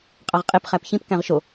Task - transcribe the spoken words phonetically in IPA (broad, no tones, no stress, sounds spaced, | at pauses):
qʼ ɑ ʁ qʼ e p χ æ p ç ĩ p k æ̃ ʁ ʃ o